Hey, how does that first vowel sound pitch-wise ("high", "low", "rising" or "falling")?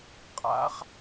rising